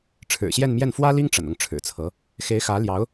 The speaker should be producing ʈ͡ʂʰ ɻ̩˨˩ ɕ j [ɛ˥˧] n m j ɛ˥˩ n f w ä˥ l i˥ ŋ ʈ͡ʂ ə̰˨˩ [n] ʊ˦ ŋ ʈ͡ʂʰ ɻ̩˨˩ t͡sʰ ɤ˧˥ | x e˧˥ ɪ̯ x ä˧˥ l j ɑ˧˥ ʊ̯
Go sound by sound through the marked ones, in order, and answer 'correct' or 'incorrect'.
correct, correct

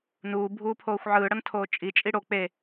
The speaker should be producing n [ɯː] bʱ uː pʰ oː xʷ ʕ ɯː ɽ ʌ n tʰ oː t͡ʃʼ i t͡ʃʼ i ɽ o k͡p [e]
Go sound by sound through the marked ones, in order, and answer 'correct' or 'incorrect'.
incorrect, correct

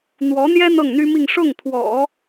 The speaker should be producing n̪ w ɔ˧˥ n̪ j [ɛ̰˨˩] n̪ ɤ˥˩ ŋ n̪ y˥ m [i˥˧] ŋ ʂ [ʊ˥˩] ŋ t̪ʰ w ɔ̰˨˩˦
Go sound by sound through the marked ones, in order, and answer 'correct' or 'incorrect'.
incorrect, correct, correct

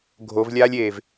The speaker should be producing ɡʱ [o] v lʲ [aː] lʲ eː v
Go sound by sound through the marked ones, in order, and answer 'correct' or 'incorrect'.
correct, correct

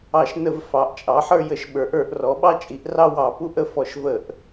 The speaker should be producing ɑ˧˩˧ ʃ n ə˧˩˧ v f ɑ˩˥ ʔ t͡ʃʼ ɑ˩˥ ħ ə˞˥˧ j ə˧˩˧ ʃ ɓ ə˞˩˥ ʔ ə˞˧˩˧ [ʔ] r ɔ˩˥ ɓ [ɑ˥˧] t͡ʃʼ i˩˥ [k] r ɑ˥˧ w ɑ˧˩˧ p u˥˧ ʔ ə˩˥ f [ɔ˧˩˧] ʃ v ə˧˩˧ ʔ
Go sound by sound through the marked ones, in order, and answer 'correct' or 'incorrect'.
correct, correct, incorrect, correct

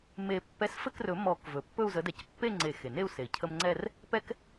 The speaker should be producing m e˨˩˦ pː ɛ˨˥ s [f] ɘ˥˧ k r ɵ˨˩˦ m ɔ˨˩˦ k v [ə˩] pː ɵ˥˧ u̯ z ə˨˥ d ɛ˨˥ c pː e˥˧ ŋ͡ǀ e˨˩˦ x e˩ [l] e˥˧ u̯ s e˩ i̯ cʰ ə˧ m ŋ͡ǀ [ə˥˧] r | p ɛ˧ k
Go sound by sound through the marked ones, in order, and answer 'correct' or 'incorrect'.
correct, incorrect, incorrect, incorrect

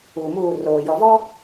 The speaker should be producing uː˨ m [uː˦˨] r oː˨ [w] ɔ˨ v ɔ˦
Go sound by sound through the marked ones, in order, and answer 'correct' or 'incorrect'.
correct, incorrect

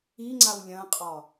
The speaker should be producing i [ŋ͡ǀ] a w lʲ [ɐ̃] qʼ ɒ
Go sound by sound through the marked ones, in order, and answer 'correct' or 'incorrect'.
correct, correct

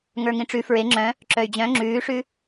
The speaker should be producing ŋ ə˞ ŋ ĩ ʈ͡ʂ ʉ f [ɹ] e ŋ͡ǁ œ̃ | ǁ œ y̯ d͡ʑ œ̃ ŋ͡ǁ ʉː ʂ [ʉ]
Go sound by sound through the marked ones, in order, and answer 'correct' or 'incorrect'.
correct, correct

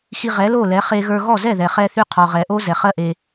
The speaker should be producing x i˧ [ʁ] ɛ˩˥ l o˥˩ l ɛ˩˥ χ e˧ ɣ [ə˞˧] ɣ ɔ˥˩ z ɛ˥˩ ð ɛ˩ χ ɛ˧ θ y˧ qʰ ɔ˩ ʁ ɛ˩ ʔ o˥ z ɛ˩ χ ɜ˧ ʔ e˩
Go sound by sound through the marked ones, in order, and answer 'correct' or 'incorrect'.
correct, correct

